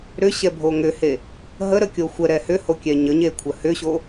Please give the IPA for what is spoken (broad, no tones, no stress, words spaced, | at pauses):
ɾʏɕɛbʱo ŋʏhe | ɦəɾəkʲo xʷəɾɛ hʏhokʲɛ ɲəɲekʷʰə hʏɕo